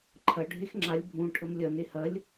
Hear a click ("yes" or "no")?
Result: yes